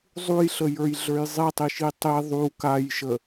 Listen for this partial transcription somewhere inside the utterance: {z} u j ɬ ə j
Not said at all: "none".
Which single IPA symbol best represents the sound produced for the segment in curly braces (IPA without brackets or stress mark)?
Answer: zˤ